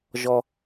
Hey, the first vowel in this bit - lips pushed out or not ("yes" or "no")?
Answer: yes